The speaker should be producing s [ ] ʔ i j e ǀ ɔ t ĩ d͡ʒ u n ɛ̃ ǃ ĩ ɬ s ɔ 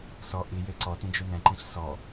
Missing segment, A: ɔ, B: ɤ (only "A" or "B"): A